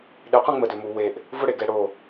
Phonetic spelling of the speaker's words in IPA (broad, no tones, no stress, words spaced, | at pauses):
ɗɪqʷɛ̃ ŋ͡mədʏmu weʔ | vʊɽeɡɛ ɽo